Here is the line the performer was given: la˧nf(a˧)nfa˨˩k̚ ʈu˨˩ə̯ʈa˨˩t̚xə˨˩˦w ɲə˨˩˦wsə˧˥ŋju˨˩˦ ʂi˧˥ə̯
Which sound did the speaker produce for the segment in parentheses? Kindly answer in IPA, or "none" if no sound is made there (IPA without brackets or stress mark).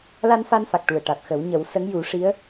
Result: a˧